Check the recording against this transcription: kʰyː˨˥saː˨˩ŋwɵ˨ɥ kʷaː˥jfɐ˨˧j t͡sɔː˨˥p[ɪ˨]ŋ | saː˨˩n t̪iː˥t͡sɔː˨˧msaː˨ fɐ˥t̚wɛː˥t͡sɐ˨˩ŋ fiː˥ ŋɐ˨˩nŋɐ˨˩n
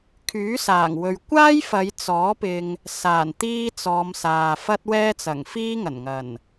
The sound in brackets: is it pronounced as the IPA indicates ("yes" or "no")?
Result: yes